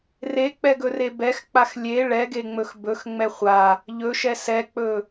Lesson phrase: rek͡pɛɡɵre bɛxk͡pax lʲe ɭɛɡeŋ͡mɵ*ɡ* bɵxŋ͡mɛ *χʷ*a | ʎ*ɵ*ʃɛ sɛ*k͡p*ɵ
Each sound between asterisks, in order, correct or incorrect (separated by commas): incorrect, correct, correct, correct